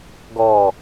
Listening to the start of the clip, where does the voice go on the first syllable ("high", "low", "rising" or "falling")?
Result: low